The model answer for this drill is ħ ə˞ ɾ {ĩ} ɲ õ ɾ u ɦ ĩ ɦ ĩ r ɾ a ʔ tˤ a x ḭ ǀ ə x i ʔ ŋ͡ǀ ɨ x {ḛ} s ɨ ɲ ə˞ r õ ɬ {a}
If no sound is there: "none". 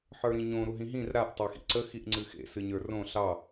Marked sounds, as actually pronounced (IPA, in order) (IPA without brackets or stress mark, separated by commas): ĩ, ḛ, ɑ